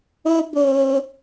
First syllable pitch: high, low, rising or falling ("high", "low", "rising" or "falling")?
high